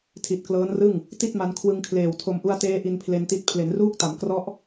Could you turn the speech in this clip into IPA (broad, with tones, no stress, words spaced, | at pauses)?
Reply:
tʰi˨˩t̚klɤː˦˥nrɯ˥˩ŋ | ti˥˩t̚ma˧n kʰwɯ˧ŋkʰleː˨˩wtʰo˧m ʔu˧a̯teː˦˥ ʔi˧npʰle˧nti˦˥t̚ pʰle˩˦nruː˦˥k̚ta˩˦mkrɔ˦˥ʔ